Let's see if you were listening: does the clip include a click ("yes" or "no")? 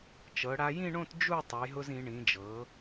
no